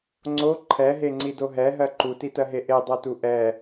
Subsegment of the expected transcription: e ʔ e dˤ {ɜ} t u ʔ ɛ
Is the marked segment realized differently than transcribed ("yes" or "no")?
no